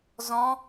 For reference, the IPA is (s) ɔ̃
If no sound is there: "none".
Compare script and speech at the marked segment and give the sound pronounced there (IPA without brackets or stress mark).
z